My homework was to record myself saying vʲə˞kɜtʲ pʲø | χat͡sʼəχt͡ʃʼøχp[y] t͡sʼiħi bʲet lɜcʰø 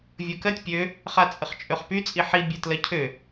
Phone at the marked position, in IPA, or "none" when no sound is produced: y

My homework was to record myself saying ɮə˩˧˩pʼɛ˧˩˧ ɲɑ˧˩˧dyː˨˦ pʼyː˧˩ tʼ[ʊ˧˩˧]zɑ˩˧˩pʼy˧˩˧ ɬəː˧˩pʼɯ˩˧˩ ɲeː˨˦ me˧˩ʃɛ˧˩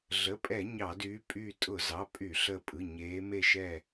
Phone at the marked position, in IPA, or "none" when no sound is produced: ʊ˧˩˧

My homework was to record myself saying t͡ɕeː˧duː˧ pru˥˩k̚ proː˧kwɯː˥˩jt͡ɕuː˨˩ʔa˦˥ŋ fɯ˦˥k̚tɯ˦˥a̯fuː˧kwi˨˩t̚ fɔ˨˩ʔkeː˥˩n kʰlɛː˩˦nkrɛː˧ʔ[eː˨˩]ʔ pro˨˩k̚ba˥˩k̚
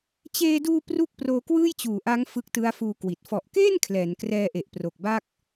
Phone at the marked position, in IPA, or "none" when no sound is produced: e˨˩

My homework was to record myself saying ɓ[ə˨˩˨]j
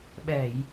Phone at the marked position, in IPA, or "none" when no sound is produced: ɛ˨˩˨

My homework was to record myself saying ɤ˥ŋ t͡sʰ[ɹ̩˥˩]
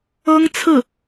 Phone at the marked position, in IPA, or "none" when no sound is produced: ɹ̩˥˩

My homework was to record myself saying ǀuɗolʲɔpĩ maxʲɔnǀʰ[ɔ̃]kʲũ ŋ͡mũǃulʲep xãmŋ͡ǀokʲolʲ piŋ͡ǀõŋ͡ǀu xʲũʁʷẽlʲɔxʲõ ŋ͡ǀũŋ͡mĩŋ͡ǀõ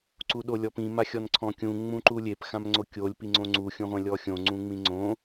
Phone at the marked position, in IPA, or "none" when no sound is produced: ɔ̃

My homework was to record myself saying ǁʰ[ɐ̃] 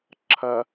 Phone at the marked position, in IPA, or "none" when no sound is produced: ɐ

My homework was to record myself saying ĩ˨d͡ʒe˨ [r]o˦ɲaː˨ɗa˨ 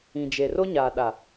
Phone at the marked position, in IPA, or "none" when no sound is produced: r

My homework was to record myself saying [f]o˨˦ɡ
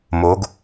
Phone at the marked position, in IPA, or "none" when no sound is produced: m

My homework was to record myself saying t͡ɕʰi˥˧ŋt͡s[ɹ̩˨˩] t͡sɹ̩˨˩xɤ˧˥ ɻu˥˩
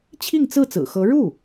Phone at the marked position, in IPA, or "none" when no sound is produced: ɹ̩˥˩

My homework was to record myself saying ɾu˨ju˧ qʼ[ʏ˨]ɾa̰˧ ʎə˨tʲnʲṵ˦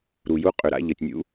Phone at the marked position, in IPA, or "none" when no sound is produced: ʏ˨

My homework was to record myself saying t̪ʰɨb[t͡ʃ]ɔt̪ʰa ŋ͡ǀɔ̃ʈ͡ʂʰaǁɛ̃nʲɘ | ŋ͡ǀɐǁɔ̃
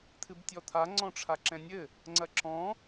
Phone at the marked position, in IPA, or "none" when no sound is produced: tʲ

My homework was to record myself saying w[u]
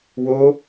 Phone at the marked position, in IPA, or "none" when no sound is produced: o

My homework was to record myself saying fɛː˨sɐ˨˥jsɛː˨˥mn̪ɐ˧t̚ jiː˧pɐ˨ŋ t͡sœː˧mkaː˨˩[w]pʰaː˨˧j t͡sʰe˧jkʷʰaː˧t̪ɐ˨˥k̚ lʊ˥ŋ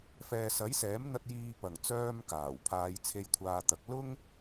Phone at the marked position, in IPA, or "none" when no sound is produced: w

